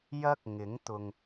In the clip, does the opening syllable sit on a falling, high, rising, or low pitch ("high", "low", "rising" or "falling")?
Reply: high